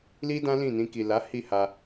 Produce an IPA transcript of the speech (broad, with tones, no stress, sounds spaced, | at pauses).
l i˦ d ã˦ l ĩ˦˨ n ĩ˧ k i˨ l a˨˦ h i˦˨ h a˧